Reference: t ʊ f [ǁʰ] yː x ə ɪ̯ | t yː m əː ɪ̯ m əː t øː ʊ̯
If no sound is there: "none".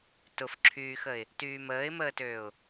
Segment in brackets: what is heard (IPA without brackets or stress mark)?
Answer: ǁʰ